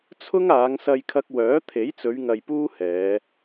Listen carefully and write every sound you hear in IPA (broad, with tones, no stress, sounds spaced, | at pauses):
t͡sʰ ʊ˥ ŋ aː˨˧ ŋ s ɐ˧ j kʰ ɐ˧ k̚ w œː˨˥ t̪ʰ e˨˥ j t͡s ɵ˨˧ ɥ ŋ ɐ˧ j p uː˥ h ɛː˨˧